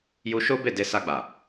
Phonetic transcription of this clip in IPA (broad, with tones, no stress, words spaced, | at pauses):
ju˧ʃo˦be˦˨ de˧sa˧ɡ͡ba˨